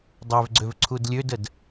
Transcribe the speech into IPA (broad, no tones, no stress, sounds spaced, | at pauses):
dˤ ø v ɡ͡ǀ ø v ǀʰ u d lʲ ø d ə d